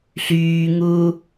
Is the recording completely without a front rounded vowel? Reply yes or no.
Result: no